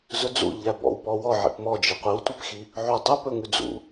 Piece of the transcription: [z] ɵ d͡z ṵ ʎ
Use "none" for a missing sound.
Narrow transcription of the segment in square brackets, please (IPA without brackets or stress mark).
z